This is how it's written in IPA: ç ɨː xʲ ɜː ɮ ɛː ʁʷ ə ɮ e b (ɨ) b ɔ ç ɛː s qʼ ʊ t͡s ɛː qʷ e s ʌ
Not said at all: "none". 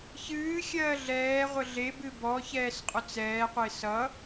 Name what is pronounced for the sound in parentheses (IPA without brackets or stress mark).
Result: ɨ